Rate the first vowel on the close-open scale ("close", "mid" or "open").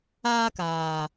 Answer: open